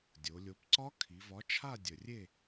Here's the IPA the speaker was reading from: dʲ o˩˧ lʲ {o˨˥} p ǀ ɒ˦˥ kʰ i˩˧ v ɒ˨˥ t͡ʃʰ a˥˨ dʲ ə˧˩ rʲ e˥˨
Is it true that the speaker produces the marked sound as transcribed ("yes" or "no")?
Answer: yes